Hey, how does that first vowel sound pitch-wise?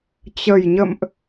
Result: low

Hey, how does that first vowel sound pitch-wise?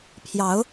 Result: rising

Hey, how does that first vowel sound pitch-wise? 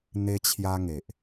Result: high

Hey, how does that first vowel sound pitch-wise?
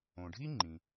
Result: low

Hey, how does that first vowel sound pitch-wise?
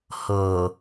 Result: low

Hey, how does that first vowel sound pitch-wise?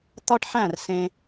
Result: high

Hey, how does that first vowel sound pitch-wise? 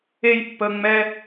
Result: high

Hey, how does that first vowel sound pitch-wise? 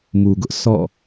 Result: low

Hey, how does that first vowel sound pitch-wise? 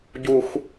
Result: high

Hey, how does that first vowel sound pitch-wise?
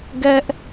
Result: high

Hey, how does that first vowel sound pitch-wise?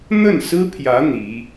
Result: falling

